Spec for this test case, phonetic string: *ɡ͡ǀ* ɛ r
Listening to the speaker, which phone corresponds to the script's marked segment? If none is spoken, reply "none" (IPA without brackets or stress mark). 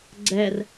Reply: ɡ͡ǀ